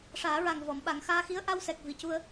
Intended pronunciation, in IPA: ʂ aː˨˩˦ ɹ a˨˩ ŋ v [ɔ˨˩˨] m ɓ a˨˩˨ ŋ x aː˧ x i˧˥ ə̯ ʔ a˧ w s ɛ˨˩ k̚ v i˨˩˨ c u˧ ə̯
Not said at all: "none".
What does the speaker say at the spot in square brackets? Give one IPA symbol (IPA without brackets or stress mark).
ɔ˨˩˨